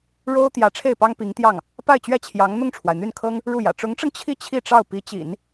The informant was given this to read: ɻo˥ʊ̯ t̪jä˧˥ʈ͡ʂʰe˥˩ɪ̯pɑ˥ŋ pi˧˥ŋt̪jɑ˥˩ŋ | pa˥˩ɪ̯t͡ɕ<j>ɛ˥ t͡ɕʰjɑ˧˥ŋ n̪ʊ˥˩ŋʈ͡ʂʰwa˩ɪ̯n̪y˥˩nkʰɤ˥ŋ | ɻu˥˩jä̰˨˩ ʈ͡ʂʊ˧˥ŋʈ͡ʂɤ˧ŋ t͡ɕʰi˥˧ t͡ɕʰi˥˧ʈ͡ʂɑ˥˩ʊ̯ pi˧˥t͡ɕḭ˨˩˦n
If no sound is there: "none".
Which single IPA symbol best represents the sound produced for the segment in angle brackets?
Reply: ɥ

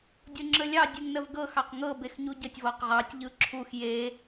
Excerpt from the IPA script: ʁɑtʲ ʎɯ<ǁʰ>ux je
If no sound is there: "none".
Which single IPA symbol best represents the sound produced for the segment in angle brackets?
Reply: ǁʰ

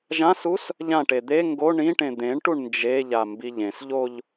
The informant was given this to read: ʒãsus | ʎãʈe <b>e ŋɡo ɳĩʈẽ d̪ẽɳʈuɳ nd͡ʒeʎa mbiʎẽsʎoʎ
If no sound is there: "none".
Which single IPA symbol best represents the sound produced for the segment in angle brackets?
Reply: d̪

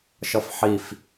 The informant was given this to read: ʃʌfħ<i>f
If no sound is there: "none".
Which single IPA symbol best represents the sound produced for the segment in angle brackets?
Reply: i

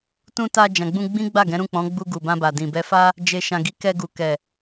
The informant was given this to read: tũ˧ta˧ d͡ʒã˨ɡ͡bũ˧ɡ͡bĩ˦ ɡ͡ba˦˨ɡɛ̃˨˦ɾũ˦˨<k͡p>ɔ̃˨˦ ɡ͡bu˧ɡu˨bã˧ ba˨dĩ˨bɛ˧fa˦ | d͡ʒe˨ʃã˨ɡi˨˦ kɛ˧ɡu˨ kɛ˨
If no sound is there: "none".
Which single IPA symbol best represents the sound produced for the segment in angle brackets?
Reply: k͡p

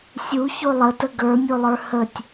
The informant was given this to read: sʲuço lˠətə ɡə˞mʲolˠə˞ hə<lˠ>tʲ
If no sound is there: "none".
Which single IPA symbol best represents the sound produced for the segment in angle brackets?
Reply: none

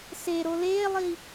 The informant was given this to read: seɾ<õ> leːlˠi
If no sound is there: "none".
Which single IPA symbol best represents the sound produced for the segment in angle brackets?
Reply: o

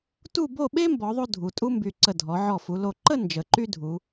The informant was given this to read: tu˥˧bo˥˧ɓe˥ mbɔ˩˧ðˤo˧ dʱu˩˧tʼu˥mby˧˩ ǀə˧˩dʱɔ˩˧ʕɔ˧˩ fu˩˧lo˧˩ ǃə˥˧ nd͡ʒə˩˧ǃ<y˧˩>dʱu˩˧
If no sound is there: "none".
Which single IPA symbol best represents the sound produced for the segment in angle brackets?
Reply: y˥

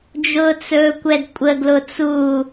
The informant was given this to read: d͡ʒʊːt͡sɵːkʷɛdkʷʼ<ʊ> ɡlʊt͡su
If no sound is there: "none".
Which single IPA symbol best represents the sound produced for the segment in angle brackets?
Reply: ə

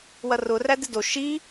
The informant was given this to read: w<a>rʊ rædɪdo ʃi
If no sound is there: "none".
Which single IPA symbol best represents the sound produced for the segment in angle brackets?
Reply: ɐ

